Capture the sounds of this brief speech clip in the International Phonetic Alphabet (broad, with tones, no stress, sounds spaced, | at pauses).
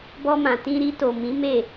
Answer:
b ɔ˧ m ã˨ t ĩ˧ ɾ i˧ t o˨ m ĩ˨˦ m e˦˨